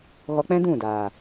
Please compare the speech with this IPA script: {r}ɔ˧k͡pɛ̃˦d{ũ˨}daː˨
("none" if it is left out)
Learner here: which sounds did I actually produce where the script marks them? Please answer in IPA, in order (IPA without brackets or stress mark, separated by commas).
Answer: ɣ, ũ˦˨